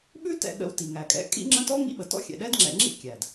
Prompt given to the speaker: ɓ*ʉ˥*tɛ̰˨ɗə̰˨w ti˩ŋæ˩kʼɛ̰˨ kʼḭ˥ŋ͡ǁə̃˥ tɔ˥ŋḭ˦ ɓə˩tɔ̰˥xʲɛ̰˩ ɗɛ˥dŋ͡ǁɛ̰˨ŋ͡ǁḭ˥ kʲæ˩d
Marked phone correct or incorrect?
correct